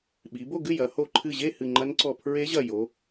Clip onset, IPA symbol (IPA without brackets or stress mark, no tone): ɓ